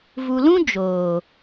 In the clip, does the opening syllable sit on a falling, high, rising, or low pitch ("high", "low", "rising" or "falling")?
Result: low